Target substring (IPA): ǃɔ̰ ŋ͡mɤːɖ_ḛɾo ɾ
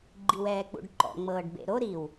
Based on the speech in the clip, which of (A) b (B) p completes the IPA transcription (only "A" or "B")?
A